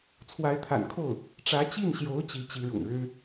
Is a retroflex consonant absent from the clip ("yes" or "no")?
no